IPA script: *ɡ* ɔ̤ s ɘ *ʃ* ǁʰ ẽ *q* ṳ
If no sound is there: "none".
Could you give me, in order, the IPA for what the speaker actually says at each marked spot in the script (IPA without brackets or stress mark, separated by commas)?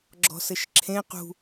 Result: ɡ͡ǁ, ʃ, q